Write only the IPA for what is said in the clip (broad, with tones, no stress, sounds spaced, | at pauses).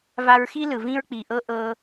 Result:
v a˧ ɹ x i˦ l ɯ˨ v ĩ˧ ɹ k͡p i˨ ʔ ɤ˧ ʔ ɤ˧